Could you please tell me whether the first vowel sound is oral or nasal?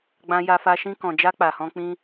nasal